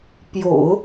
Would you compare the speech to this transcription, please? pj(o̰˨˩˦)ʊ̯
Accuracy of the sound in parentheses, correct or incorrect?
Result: correct